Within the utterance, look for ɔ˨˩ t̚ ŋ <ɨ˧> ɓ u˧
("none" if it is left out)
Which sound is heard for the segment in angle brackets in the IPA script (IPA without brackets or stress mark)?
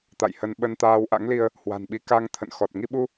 i˧